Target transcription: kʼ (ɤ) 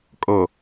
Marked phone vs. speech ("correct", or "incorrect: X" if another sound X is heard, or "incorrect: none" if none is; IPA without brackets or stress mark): correct